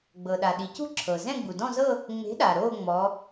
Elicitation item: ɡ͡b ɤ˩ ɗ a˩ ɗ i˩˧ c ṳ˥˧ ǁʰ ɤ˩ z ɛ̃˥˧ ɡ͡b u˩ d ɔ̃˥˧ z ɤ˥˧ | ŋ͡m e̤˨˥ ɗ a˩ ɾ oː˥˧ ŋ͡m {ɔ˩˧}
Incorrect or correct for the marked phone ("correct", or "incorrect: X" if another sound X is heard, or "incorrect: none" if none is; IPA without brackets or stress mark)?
correct